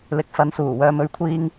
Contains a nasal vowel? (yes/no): no